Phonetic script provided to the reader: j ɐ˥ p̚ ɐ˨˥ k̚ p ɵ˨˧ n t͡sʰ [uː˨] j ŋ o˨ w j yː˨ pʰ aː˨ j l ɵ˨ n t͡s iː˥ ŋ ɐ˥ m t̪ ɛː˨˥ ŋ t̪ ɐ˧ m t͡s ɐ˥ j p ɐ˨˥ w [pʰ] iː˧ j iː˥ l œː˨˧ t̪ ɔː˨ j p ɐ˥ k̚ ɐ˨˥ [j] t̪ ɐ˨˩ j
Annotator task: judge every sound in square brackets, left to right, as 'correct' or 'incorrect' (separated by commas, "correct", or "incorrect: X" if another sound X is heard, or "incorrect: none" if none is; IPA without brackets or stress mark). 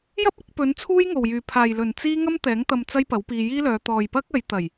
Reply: incorrect: uː˥, incorrect: p, correct